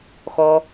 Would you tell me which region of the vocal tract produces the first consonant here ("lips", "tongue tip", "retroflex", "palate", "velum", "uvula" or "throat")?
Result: velum